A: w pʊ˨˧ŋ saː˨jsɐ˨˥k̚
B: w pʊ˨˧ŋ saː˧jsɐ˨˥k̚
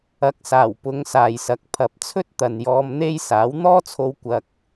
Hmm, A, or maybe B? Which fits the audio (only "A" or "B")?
A